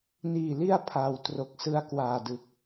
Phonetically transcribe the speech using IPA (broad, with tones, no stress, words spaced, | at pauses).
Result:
niː˨˩li˧a̯ pʰaː˩˦w tro˨˩k̚sɯ˧a̯kwaː˨˩dɯ˨˩k̚